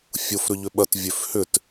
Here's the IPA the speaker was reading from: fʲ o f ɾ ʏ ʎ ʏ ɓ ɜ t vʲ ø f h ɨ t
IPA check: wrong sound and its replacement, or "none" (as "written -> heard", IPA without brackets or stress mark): ɨ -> ʏ